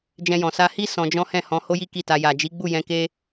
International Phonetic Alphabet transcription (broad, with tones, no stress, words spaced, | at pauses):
d͡ʒɛ̃˧jɔ̃˨ sa˧hi˦ sɔ̃˧d͡ʒɔ̃˦ hɛ̃˦˨hɔ̃˧ ho˦ji˦ ki˦˨ta˧ ja˨d͡ʒi˨˦ɡ͡bu˦˨ jɛ̃˧ke˦